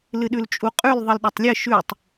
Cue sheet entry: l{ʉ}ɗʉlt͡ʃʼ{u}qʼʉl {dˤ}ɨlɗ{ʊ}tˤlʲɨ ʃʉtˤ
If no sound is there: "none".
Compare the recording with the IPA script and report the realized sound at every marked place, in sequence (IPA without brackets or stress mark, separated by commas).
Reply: ɨ, u, ðˤ, ɵ